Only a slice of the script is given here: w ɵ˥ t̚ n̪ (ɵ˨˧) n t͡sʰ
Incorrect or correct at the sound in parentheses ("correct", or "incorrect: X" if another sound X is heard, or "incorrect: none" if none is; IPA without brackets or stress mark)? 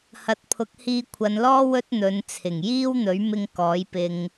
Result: correct